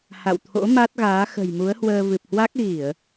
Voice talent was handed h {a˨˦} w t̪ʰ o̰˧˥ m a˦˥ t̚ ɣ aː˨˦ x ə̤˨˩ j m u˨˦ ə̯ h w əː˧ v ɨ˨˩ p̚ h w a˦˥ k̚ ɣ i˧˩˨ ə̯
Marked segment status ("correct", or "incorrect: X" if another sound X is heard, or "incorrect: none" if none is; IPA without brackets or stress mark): incorrect: a̰˧˨